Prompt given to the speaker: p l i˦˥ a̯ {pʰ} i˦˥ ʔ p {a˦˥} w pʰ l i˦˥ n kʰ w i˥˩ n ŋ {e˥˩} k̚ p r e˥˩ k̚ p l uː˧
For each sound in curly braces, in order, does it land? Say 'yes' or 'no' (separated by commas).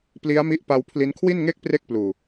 no, yes, yes